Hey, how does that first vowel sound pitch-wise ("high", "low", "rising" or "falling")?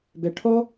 low